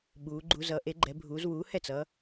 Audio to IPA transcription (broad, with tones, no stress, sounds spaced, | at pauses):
ɓ uː˨˦ ɡ͡ǃ u˨˦ z ʌː˨˦ ʔ e˨˦ ɡ͡ǃ ɛ˨˦ bʱ uː˨˦ z w uː˨˦ h ɛ˥˩ t͡s ʌː˨˦